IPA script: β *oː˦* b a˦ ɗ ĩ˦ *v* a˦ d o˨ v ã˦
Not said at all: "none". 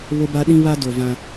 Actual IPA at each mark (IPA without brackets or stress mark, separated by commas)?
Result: o˦, β